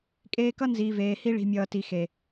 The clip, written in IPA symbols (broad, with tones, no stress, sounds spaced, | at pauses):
kʼ eː˧ k ʌ˦ n z iː˨ v eː˨ h i˧ ɭ i̤˨ mʲ ʌː˨ t i˨ x e˨